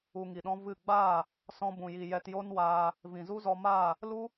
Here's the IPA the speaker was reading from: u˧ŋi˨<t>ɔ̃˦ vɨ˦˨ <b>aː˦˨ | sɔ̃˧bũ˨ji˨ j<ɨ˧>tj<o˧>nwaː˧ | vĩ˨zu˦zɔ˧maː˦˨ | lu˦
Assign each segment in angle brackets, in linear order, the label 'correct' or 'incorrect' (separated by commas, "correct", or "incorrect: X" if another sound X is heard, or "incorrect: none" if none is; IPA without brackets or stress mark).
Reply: incorrect: ɗ, incorrect: ɡ͡b, incorrect: ɛ˧, incorrect: o˦